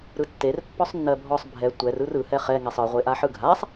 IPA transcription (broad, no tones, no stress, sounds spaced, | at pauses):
ɾ ɯ tː e r pː ɔ sˤ nː ɜ bʱ ɔ sˤ bʱ ɛ tʷ ɛ r ɯ r ɯ h ɛ χ ɛ ŋ ɛ sˤ ɯ ʁʷ e ʔ a ħ ɯ ɡʱ a sˤ